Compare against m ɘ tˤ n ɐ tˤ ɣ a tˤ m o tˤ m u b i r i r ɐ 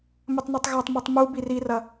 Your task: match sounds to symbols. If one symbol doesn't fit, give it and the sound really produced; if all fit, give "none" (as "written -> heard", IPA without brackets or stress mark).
none